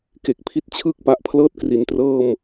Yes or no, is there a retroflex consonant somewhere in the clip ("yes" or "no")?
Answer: no